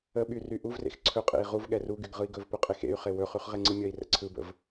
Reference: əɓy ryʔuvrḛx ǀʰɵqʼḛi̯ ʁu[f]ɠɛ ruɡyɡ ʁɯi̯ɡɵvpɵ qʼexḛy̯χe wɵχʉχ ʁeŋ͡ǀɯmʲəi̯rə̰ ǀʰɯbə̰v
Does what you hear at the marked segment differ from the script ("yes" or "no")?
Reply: yes